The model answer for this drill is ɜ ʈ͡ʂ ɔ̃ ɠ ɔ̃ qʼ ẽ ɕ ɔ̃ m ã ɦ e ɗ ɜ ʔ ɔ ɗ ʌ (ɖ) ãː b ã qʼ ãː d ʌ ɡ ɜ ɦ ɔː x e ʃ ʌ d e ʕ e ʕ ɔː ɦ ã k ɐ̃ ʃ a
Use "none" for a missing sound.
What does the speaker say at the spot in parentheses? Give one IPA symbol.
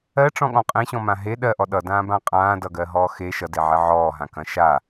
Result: d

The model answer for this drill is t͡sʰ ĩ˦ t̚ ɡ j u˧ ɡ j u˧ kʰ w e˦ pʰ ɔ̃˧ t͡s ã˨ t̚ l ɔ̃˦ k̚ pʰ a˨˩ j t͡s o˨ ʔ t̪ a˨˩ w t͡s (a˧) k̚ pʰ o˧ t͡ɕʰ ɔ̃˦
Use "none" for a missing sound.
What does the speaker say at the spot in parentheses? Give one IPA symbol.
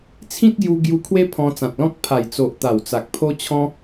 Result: a˨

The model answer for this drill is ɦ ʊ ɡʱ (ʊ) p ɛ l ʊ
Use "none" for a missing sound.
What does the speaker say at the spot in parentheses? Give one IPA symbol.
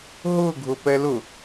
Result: ʊ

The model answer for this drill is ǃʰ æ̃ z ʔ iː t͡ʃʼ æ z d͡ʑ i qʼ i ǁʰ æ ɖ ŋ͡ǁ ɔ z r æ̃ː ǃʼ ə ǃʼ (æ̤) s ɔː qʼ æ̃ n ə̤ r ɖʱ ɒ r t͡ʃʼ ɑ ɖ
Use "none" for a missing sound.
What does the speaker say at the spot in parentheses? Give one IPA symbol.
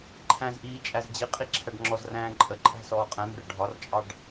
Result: æ̤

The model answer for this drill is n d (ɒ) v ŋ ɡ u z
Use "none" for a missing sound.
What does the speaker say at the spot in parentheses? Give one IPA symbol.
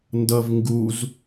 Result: ʌ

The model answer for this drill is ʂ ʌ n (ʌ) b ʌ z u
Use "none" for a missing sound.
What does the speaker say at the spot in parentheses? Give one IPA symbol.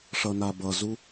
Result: a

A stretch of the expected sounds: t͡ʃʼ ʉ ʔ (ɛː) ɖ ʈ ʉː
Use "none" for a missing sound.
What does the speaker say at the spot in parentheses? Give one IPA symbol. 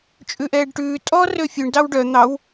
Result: ɛː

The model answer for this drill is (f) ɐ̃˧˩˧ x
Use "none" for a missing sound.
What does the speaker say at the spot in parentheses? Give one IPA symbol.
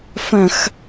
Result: f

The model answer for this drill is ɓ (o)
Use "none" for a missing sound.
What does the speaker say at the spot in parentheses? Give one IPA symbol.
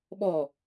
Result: ɔ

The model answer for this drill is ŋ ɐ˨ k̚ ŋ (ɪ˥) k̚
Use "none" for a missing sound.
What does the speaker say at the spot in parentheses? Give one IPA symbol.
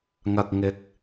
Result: ɪ˨˥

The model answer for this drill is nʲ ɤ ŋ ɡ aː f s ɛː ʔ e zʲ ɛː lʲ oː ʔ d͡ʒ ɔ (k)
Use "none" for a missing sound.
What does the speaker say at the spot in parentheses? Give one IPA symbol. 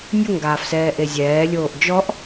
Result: ʔ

